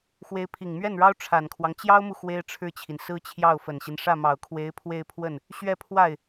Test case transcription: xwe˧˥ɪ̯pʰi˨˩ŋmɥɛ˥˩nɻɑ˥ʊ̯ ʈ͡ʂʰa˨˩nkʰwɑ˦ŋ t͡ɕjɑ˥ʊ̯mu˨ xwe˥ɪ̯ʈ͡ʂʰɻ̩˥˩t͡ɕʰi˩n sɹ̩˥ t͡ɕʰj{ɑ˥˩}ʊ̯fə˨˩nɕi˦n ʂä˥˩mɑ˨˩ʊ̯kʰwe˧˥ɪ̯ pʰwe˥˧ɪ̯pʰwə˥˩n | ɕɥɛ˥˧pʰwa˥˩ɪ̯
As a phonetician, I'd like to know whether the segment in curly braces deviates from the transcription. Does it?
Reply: no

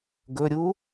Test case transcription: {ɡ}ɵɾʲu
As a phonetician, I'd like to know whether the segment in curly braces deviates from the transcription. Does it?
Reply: no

